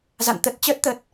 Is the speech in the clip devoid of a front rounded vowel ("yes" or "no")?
yes